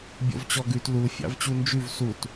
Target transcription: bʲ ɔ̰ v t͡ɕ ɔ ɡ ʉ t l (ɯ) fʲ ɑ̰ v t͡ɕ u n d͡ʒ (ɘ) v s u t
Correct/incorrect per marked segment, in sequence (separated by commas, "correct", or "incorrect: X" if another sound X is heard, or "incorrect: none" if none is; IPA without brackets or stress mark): incorrect: u, incorrect: ʉ